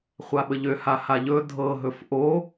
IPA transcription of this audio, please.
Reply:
χʷ a ɓ ə ʎ ø h a h a ʎ ɵ dʱ ɤ ɦ ɵ f ʔ o

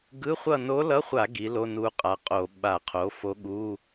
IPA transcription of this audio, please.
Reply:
ɡ ɯ˧˥˧ χʷ ʌ˦˨ n o˧˥ l ʌ˧˥˧ χʷ a˧˩˧ ɡ i˩˥ l o˧˥˧ n u˧˥ qʼ a˩˥ qʼ o˧˩˧ ɓ a˧˩˧ qʰ o˩˥ f o˧˥ ɠ u˧˥˧

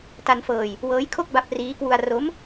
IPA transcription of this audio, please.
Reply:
t a˧ n f ɤː˧ j | w ɤː˦˥ j kʰ o˥˩ k̚ b a˦˥ p̚ r iː˦˥ k w u˧ a̯ r o˦˥ m

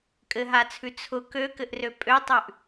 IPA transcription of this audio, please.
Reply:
kʼ ɘ ɦ a t͡sʰ ʉ t͡sʰ ʊ k ø k ɘ ʔ r ø pʼ ø tˤ ʉ ʔ

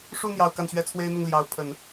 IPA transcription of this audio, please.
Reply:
ʂ u˥˧ n̪ j ɑ˥˧ ʊ̯ k a˥˩ n ɕ ɥ ɛ˥ t͡sʰ w e˥ ɪ̯ n̪ ʊ˥˩ ŋ l j ɑ˧˥ ʊ̯ pʰ ə˨˩˦ n

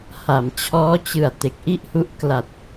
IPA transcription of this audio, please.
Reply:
h a˩˦ m t͡ɕʰ ɔː˦˥ t͡ɕ ɯ˨˩ a̯ t e˨˩ k̚ ʔ i˥˩ ʔ h u˦˥ ʔ k l a˨˩ t̚

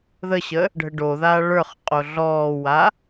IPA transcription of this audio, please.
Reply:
ð ə ɕ ə | ɖʱ ə ɖ o ð aː ɭ ə˞ χ qʼ o ɮ ɔː w a

